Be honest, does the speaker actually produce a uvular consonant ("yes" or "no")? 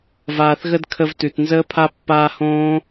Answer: no